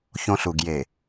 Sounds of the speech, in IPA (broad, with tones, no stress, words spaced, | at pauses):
çõ˦ɬu˨ɡ je˨